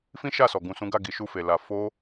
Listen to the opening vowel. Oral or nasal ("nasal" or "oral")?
nasal